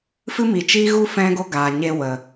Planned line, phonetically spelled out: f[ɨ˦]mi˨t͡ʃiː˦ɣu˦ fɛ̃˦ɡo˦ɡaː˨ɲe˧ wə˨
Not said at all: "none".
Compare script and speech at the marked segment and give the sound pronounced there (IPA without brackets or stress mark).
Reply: ɨ˦